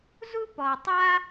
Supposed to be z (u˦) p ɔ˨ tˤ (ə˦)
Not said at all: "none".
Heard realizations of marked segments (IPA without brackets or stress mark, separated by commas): u˦, a˦